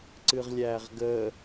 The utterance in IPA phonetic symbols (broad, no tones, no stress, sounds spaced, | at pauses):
ǀ ɨ ʁ lʲ æː ʁ ɡ əː